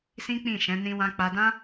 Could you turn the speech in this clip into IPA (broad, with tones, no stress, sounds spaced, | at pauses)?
s ĩ˦ k͡p ĩ˦˨ ʃ ɛ̃˨˦ n ĩ˧ w ã˧ k͡p a˧ d ã˦